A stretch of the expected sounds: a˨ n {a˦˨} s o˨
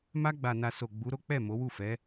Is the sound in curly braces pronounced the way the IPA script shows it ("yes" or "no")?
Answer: no